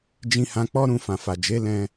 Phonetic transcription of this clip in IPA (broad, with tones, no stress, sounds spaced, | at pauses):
d͡ʒ ĩ˧ h ã˧ k͡p ɔ˦ ɾ ũ˧ f ã˨ f a˨ d͡ʒ e˨˦ l ɛ̃˧